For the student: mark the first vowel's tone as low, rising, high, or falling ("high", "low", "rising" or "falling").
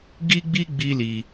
high